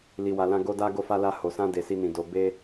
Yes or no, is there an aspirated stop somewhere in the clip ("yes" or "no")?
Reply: no